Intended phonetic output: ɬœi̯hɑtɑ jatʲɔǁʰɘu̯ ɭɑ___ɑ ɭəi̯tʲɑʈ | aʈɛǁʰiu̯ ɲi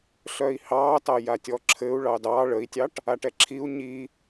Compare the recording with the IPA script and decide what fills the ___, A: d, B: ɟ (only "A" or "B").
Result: A